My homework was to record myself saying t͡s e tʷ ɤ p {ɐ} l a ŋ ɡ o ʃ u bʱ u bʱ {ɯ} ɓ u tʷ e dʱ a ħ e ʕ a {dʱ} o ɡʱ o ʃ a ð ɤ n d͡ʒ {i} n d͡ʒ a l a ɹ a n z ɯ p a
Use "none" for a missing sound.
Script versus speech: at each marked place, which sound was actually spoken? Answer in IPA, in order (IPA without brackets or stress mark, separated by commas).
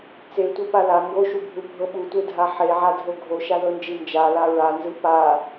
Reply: a, ɤ, dʱ, i